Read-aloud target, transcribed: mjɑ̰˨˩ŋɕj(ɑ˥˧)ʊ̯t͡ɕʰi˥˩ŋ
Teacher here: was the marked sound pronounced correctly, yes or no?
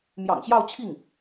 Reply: yes